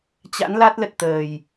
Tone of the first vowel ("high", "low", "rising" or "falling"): rising